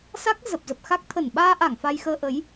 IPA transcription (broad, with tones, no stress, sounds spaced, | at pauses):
s a˦˥ k̚ z ə˨˩ p̚ z ə˨˩ p̚ x a˦˥ k̚ t̪ʰ ə˧˩ n ɓ aː˧ ʔ a˧˩ ŋ f a˧ j x əː˧ ʔ ə˨˦ j